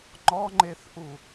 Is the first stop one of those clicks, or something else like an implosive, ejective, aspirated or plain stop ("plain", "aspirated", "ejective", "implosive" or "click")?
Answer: click